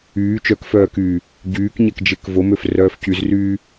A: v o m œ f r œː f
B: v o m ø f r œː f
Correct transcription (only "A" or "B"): B